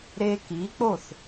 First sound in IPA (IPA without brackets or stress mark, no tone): ɾ